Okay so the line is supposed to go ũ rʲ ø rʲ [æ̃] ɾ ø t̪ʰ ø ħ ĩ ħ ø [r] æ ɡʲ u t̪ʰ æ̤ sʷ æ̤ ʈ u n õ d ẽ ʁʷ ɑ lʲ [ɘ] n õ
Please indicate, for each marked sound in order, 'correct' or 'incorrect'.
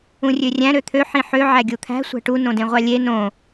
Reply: correct, incorrect, incorrect

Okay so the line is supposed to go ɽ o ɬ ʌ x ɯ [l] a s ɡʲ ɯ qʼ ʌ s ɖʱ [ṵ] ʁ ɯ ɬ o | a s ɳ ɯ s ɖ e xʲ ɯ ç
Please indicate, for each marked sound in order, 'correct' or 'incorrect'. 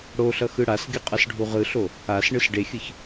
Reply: incorrect, incorrect

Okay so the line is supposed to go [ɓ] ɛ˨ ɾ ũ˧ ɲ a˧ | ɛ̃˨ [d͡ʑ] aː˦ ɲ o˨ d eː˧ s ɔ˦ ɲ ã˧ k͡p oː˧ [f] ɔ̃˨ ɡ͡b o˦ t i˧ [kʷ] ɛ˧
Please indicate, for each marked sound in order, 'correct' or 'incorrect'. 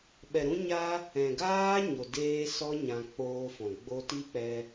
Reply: correct, incorrect, correct, incorrect

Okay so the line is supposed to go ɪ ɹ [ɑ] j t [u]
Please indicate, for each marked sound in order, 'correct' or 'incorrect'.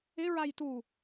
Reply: incorrect, correct

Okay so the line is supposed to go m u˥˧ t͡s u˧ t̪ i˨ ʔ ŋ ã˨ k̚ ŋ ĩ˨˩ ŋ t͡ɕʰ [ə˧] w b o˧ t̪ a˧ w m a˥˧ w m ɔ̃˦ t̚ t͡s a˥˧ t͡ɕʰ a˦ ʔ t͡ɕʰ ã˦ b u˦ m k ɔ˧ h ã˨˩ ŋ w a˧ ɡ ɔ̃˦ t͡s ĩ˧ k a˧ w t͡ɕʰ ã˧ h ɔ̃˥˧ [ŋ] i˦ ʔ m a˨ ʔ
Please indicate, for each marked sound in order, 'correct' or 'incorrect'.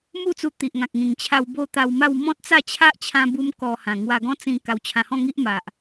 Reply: incorrect, correct

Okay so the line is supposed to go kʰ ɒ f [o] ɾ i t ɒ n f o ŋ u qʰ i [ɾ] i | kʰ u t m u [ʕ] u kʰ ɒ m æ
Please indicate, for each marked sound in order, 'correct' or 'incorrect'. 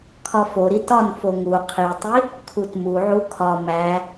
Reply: correct, incorrect, correct

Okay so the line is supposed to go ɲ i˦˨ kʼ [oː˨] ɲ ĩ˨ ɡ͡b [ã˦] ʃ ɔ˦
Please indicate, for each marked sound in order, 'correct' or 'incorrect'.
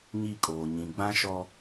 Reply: correct, correct

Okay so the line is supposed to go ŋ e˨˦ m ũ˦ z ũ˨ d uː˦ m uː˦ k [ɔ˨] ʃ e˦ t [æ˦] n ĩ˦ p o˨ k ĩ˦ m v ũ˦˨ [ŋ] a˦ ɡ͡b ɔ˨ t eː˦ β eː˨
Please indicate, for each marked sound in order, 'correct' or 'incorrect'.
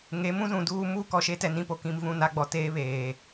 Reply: correct, incorrect, incorrect

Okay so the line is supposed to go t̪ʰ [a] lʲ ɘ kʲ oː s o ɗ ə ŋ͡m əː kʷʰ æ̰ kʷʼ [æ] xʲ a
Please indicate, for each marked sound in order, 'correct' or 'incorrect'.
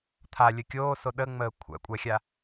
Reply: correct, correct

